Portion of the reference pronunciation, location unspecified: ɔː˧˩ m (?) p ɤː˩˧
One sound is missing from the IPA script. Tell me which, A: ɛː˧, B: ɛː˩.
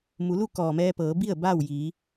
A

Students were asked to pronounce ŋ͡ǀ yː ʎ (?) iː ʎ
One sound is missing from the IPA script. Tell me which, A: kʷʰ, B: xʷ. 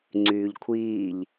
A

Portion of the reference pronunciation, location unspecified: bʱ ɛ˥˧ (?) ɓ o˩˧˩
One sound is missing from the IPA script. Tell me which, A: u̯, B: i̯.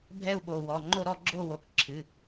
A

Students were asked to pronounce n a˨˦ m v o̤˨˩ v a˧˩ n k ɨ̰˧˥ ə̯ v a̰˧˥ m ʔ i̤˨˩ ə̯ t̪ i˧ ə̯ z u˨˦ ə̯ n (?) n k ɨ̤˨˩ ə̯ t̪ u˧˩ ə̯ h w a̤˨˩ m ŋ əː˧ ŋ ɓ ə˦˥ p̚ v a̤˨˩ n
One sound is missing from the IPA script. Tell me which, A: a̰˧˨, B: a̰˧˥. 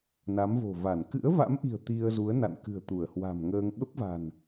A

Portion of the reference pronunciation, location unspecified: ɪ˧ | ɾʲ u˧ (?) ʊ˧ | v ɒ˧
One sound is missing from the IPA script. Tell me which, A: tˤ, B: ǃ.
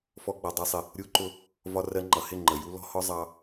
B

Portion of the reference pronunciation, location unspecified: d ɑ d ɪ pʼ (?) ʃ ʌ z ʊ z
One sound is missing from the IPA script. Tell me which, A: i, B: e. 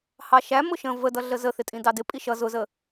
A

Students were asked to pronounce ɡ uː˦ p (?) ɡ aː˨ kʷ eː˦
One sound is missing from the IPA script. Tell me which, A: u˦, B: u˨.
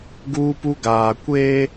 A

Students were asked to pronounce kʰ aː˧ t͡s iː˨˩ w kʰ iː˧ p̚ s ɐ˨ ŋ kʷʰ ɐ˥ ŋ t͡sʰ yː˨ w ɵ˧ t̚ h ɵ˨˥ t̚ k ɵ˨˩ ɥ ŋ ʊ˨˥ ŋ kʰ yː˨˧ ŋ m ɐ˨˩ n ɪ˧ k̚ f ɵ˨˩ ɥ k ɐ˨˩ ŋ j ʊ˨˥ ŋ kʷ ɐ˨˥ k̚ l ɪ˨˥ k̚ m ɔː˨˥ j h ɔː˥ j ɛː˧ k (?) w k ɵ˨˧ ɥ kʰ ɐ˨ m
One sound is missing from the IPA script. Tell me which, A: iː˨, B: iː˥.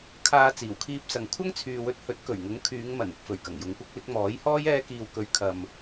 A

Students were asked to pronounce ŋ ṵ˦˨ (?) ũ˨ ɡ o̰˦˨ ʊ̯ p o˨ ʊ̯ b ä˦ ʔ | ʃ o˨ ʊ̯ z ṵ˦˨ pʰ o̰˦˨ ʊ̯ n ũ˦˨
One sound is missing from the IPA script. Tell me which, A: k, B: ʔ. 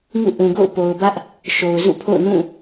B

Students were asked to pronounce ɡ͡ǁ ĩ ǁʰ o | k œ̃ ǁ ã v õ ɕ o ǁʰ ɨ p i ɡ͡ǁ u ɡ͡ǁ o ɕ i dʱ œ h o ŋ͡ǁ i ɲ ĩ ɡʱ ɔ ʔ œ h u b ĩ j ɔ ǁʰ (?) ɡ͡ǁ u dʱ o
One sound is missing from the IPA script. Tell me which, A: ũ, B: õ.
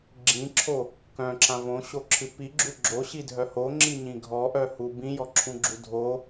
A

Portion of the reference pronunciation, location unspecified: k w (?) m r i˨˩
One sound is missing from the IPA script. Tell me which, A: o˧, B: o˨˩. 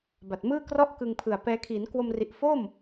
A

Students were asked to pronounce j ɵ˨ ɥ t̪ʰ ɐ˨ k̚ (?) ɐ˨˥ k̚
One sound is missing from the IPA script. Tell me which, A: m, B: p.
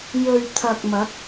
A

